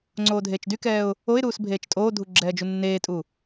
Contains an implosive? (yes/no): no